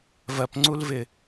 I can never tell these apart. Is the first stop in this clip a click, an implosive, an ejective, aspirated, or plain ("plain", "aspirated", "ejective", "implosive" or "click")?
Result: plain